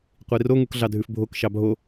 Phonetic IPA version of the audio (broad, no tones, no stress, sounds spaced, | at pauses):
qʷ i r o ŋ u k ɮ ɑ dʱ ʉ f bʱ o k ʃ ɑ bʱ o